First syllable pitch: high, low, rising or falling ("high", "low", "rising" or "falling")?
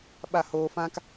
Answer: falling